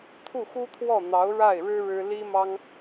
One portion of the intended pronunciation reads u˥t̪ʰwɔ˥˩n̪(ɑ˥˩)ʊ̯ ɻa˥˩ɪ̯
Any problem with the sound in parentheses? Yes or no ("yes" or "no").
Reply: yes